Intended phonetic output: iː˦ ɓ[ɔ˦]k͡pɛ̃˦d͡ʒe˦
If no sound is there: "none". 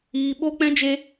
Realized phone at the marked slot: o˦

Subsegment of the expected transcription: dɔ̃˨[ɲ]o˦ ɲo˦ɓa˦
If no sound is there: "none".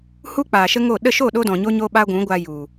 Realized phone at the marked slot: ɲ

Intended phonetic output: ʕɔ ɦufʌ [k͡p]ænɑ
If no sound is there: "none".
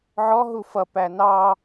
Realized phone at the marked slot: p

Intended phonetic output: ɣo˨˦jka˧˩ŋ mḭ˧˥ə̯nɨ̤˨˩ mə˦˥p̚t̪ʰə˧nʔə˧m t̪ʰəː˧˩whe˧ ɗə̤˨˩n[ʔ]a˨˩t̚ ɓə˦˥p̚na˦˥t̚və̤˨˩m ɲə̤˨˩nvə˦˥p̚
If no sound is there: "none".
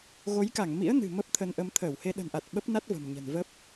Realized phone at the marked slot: ʔ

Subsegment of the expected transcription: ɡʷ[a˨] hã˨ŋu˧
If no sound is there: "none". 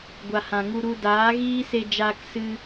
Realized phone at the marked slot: a˨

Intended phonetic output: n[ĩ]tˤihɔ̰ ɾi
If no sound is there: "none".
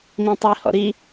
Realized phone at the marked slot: ĩ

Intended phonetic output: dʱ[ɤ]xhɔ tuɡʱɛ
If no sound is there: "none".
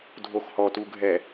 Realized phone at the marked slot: o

